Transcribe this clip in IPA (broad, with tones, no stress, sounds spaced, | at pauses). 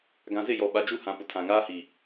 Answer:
ɡ ã˨ z ɪ˦˨ j ɔ˨ ɓ a˨ d͡ʒ u˦˨ h ã˨ p ʊ˨ tʰ ã˨ ŋ aː˦ h i˨